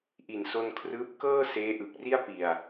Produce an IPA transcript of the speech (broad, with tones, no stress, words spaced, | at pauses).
ʔi˨˩nso˧nkʰrɯː˦˥p̚ kɤː˥˩ seː˦˥ʔɯ˨˩k̚ri˥˩a̯ pi˨˩a̯